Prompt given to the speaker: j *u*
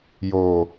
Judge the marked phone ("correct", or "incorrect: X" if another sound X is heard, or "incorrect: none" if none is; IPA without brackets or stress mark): incorrect: o